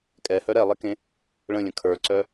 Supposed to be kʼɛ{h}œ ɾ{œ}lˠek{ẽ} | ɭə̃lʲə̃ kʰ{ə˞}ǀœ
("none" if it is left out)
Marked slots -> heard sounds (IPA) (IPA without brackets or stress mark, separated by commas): h, ɛ, ẽ, ə˞